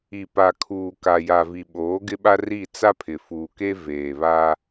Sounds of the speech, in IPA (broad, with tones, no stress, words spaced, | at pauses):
i˨pa˨kʰuː˨ ka˨ja˨vi˨ ɓoː˨˦ɡɪ˦ɓa˦ri˦˨ t͡sa˦pʰɪ˨fuː˨ke˦ veː˨βa˦